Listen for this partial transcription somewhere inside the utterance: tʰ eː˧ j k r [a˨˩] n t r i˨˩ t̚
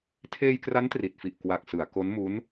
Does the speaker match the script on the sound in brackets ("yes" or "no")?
no